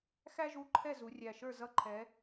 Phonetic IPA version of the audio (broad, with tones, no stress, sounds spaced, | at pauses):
x æ˥ ʒ u˧˥˧ ǃʰ ɛ˥˨ z u˨˦ rʲ æ˧˩ ʃ ə˞˥˨ z ʌ˧˥˧ ǃʰ ɛ˨˦